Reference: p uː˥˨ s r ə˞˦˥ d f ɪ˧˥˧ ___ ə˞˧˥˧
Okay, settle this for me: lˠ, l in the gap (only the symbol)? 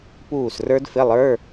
lˠ